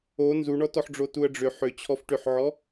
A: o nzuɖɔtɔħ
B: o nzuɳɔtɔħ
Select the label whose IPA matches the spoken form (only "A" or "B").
B